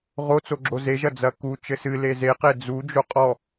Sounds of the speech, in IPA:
ʁ o t͡s o ɡ͡ǁ o z e ʒ ɐ d͡z ɐ k u t͡ʃ ɘ s ɨ l e z e q e d͡z u d͡ʒ o qʼ ɔ

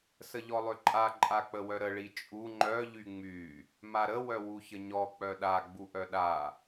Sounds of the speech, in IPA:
s ə ʎ ɔ lˠ ø ǃʼ a ǃʼ a k͡p ə w œ ɾ ə ɭ i t͡ʃʼ u ŋ͡ǃ œ ʎ y ŋ͡m y | m a ɾ ə w œ w u ç ə ɲ ɔ k͡p œ ɗ a ɡ͡b u ʔ œ ɗ a

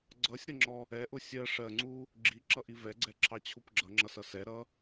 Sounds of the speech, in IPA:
ɡ͡ǀ ʌ sʲ ɾ ʌ ŋ͡ǁ ɔ | ɛ ʔ ʊ sʲ ɜ ʂ ɜ ŋ͡ǀ u | ɡ͡ǁ i ǁ ʌ ʔ i v ɛ ɡ͡ǀ ɛ ǁʰ ɑ t͡ɕʰ u p ɡ͡ǁ ʌ ŋ͡ǁ ʌ s ʌ s ɛ ɾ ʌ

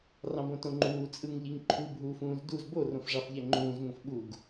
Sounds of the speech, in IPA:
r ɑ̃ b õ t õ ŋ͡ǃ uː t͡sʼ ɯ ŋ ʎ i ŋ ǃʰ u bʱ uː f ũː z d u z b o r õ f ʐ ɑ f ʎ æ ŋ͡ǃ ũː z ŋ õ f ɓ u ɡ

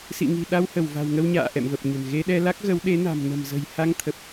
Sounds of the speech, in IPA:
s ḭ˧˨ ŋ i̤˨˩ ɗ a˧ w h ə˧˩ w v a̤˨˩ w ŋ ə˧ w ɲ a̰ː˧˨ ʔ ɛ̰˧˨ m v ə˨˩ p̚ ɲ ə̤˨˩ n ɣ e˧ ɗ ɛ˧ l a˦˥ k̚ ɣ ə˨˦ w ɗ e˨˦ n a̤˨˩ m n ə̤˨˩ m z ə̤˨˩ j h a˧ ŋ t̪ʰ ə˨˩ p̚

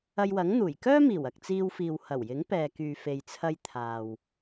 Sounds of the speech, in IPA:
ɐ˧ j w ɐ˨˥ ŋ n̪ uː˨˩ j k œː˥ m iː˨˩ w ɐ˨ k̚ t͡s iː˧ w f iː˨ w h ɐ˨˩ w j ɪ˨˥ ŋ p ɛː˨ k yː˨ f e˨ j t͡sʰ ɐ˧ j t̪ʰ aː˨ w

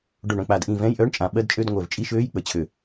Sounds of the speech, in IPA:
ɖ o˧˩ ɳ œ̃˧˩ k͡p a˧˩ d ʔ ĩ˧˩ v ɛ̃˧˥˧ j ʔ œː˧˥˧ ɳ t͡ʃʼ ã˧˩ ɓ ɜ˧˥˧ d t͡ʃʼ ø˧˥˧ d ŋʷ œ˧˩ v t͡ʃʼ i˧˥˧ ʃ øː˧˥˧ j k͡p ə˧˩ t͡ɕʰ ø˧˩

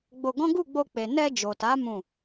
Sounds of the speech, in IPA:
ɡ͡b o˧ ɡ ɔ̃˦ ɡ u˦˨ ɡ͡b o˧ k͡p e˨ n ɛ˧ d͡ʒ o˨ t a˨˦ m ũ˦˨

